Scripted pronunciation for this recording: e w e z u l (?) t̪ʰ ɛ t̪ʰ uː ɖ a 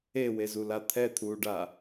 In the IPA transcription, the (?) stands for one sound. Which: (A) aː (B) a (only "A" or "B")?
B